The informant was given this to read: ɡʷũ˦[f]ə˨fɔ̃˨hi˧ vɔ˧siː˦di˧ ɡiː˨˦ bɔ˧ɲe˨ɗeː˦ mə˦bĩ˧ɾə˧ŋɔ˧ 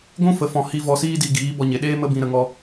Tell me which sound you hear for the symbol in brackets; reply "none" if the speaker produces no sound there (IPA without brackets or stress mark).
f